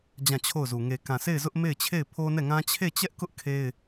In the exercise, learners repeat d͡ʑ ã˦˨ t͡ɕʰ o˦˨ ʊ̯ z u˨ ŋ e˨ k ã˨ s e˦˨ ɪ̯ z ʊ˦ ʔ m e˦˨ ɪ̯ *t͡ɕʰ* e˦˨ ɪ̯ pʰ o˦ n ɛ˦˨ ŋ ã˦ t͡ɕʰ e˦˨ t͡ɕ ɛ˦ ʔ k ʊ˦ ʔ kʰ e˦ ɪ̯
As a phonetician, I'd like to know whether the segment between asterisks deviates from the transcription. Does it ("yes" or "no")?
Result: no